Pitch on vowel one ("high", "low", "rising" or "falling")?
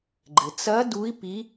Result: low